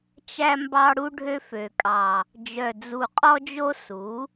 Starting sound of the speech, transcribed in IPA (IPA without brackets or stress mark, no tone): t͡ʃ